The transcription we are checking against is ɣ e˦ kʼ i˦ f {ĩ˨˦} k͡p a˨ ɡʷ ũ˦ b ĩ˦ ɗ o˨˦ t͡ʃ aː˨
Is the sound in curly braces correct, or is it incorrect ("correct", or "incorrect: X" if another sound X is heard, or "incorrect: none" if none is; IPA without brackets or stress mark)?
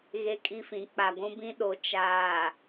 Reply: correct